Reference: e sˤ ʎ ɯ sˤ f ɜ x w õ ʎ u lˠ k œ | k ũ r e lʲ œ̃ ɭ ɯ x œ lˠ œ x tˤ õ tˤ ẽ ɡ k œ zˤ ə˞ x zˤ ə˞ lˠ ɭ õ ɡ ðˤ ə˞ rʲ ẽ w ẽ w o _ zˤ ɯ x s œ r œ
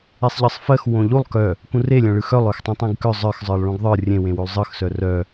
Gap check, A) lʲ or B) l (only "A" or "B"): B